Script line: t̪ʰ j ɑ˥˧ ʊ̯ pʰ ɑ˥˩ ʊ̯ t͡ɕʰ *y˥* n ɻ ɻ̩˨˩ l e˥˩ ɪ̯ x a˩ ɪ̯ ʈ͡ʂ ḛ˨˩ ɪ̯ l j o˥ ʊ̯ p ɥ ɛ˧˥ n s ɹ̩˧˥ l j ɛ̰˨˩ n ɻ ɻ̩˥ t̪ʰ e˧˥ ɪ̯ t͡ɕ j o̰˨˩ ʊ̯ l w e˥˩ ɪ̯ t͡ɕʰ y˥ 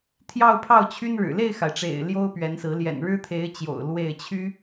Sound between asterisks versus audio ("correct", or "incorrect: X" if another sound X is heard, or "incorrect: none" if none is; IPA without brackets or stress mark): correct